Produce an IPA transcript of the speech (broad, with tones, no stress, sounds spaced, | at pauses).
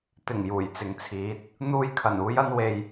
t̪ ɪ˨˩ ŋ j uː˨˩ j t͡s ɪ˨ ŋ t͡sʰ iː˨˥ t̚ | n̪ uː˧ j kʰ ɐ˨˩ n uː˨˧ j ɐ˧ n w e˨ j